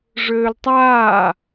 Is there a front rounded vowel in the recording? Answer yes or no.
yes